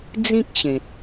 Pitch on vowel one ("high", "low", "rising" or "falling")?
high